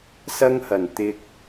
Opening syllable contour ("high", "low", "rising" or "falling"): high